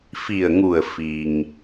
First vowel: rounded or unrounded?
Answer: unrounded